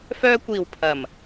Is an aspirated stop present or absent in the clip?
present